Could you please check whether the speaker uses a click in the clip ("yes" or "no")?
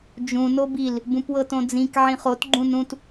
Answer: yes